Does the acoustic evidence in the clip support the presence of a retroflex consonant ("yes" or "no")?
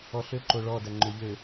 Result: yes